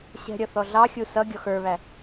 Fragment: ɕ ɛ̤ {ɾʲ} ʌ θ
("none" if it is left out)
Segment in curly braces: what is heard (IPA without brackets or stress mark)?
ɾʲ